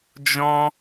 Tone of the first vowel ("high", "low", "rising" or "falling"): high